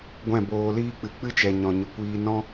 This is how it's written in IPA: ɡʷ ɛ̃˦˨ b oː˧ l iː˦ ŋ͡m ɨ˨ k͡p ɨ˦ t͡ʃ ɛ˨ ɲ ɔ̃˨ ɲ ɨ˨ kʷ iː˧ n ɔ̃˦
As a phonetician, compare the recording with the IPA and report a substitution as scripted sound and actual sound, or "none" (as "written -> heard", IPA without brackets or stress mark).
ŋ͡m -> k͡p